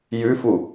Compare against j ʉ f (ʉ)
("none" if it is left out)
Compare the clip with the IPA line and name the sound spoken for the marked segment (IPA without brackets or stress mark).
u